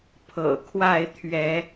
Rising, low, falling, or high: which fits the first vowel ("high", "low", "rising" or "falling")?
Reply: low